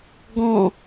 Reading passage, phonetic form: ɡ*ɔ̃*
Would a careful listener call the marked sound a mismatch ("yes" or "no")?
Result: no